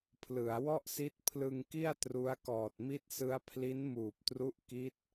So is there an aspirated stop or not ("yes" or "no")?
yes